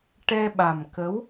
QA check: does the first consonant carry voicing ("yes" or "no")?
no